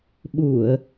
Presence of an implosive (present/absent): present